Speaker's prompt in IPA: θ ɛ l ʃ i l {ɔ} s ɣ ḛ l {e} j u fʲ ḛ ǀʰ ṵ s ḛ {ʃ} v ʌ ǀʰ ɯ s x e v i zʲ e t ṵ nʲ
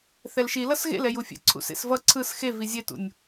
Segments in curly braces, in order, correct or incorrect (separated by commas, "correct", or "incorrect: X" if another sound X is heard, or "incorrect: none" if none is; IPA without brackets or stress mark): incorrect: ʌ, incorrect: ɛ, incorrect: s